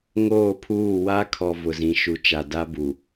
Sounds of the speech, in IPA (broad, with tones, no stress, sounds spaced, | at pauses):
ŋ oː˦˨ pʰ uː˦˨ w a˦ kʰ ɔ˨ v ʊ˨ z ĩ˨ ʃ u˨ t͡ʃ a˨ d a˦ b u˨